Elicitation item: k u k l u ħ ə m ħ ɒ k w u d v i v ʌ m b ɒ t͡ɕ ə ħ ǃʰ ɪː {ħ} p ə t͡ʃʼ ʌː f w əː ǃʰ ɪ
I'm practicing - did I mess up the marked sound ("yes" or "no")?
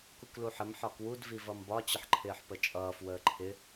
no